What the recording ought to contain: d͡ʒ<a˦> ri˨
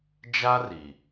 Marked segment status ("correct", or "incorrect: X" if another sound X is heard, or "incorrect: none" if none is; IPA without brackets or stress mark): correct